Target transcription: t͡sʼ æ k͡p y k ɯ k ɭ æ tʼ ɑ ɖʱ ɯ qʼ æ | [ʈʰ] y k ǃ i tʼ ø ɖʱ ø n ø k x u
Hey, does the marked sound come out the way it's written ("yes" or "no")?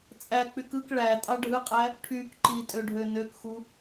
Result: yes